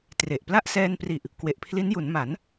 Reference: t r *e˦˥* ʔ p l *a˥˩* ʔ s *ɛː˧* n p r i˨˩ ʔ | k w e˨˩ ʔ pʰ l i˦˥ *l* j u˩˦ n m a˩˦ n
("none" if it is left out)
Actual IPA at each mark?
e˨˩, a˥˩, ɛː˧, n

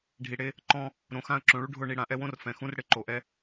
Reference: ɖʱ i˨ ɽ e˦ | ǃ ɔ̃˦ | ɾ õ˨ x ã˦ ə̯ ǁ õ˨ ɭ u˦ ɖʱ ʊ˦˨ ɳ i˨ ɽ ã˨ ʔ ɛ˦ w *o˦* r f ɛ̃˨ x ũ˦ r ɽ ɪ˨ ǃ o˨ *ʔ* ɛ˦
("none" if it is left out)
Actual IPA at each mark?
õ˦, ʔ

